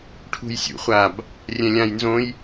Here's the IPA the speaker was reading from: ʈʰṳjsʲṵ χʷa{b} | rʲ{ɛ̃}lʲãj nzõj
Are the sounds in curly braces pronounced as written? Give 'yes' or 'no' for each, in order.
yes, yes

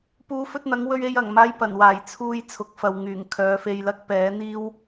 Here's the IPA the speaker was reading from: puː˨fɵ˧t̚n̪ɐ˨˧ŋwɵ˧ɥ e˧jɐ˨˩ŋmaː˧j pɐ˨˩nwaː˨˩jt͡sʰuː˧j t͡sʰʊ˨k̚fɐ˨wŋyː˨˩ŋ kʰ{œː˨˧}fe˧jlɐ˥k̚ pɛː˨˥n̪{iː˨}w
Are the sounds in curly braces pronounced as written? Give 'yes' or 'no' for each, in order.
yes, no

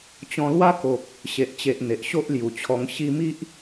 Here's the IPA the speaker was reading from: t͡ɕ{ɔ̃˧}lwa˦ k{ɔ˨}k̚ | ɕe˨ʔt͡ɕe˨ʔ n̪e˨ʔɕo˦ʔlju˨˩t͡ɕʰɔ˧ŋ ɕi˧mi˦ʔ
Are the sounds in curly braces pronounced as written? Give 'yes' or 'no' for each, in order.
yes, no

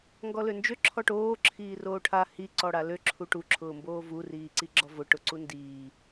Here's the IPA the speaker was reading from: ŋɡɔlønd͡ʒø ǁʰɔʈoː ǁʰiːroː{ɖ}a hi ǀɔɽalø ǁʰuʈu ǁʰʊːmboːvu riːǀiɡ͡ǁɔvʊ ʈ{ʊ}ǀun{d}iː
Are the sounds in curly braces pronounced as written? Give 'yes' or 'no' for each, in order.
no, yes, yes

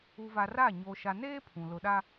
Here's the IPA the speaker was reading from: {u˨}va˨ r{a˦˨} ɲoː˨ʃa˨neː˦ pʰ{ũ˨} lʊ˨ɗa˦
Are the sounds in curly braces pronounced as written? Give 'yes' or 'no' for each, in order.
yes, yes, yes

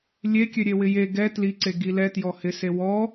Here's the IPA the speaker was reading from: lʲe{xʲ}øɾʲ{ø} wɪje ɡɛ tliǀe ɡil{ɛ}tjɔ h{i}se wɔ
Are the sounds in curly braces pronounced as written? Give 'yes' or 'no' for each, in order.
no, no, yes, no

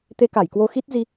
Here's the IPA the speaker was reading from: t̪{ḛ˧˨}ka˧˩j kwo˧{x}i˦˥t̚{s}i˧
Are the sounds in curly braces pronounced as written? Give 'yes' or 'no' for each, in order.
no, yes, no

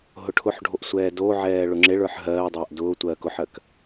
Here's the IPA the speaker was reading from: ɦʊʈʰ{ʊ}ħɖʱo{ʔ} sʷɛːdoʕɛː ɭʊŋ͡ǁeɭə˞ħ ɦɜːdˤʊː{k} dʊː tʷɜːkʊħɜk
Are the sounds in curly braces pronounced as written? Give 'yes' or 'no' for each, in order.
yes, yes, no

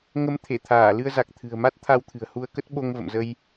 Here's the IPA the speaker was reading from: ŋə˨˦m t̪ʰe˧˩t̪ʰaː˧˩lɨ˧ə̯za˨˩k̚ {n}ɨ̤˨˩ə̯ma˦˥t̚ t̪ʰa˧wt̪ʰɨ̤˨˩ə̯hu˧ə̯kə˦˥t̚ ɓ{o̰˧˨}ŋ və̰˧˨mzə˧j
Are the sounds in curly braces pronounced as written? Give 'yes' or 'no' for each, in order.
no, no

